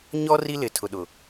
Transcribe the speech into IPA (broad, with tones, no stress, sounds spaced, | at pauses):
ɲ ɔ˦ r i˦ l ɪ˨ tʰ ʊ˨ ɗ ʊ˨